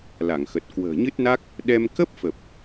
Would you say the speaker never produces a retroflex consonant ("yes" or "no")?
yes